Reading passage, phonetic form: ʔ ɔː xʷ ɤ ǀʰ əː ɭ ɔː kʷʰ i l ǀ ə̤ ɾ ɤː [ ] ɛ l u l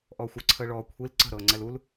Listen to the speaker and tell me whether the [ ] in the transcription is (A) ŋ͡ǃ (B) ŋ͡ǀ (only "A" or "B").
B